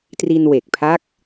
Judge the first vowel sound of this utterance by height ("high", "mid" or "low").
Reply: high